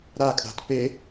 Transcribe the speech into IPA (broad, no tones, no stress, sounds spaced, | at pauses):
ɾ a kʼ a̤ t p e